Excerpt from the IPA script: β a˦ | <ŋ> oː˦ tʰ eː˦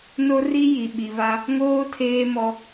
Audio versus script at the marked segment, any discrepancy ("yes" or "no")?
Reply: no